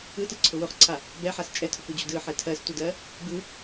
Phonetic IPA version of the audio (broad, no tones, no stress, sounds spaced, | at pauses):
ɯ t ɯ ǀʰ ʊ w ʊ χ ǀʰ a | b ɛ ħ a s t͡ʃʼ ɛ tʰ ʊ k u d͡ʑ u d ɯ ħ ɛ tʰ ɜ s t u d ɜ | b ɯ